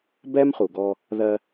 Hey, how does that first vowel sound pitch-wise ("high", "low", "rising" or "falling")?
high